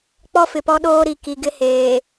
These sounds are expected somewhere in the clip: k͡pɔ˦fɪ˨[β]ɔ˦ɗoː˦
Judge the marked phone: incorrect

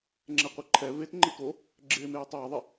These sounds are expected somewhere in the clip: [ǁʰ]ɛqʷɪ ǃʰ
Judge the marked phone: incorrect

